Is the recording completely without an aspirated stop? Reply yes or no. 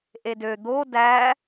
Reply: yes